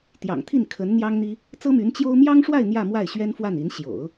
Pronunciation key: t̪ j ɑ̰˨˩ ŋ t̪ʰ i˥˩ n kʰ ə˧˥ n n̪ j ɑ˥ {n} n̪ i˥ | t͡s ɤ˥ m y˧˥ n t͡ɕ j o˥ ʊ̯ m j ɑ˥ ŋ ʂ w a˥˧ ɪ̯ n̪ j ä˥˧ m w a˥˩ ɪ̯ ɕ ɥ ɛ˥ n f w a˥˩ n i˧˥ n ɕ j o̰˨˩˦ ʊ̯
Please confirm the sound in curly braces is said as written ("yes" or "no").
no